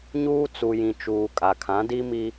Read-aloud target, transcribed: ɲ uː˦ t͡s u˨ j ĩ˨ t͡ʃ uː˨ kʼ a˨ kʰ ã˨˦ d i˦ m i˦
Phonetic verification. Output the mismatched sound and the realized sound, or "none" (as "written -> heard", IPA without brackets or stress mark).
none